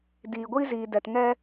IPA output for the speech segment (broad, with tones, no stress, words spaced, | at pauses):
diː˨ɡʷiː˦ziː˨dɛ˨t ŋɛ˦